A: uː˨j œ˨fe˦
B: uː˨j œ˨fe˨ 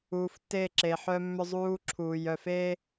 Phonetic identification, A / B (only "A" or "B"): A